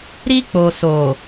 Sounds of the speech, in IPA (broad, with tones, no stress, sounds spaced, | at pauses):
ɾ i˦ k͡p o˨ s o˨